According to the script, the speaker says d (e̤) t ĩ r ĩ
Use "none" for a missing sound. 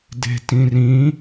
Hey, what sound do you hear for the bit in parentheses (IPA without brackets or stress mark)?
e̤